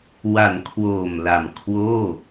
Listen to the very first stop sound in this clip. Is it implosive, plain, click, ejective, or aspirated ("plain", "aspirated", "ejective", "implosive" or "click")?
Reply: aspirated